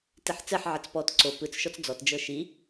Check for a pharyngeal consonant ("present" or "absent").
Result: present